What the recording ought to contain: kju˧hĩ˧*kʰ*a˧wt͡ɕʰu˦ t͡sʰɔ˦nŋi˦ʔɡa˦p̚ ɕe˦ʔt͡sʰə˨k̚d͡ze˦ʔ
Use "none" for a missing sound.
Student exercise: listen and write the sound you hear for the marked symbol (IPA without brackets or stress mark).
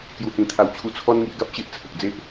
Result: t̪ʰ